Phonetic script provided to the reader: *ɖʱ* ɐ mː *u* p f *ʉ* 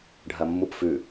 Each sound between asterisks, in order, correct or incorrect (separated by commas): correct, correct, correct